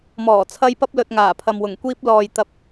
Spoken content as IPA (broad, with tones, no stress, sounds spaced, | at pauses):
m ɔː˨˩ t͡sʰ ɐ˧ j p ɐ˧ p̚ l ɵ˨ t̚ ŋ aː˨˩ pʰ ɐ˨ m w ʊ˨˩ ŋ kʷ iː˧ p̚ l ɔː˨ j t̪ ɐ˨˥ p̚